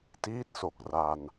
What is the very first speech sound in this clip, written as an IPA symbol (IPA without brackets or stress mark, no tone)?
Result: t